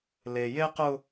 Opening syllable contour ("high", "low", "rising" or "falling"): low